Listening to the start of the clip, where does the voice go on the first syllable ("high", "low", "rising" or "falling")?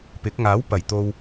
rising